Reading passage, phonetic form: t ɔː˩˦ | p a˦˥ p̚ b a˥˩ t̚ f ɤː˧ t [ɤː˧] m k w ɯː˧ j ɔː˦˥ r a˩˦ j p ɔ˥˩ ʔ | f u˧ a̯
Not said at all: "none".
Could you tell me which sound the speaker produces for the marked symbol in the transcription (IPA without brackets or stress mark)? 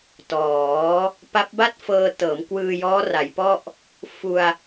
ɤː˩˦